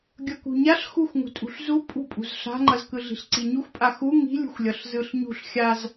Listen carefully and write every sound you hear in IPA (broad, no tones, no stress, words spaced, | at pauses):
ɡʲʌkṳɲaɬ xuxʷŋṳtʼṳɬzu pʼṳpʼṳz ɬa̤ŋ͡ǃʌzkɯ ɮi̤ɬǀiɲuxʷpʼa xu ŋi̤lʲṳxʷ lʲʌɬzɯɬɲṳɬ xʲaz